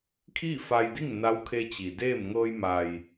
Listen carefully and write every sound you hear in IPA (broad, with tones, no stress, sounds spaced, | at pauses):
kʰ iː˥˨ f a˧ j d i˥˨ ŋ n a˧˥ w kʰ e˧ t͡ɕ i˩ d eː˥˨ m ŋ ɤː˧ j m a˩ j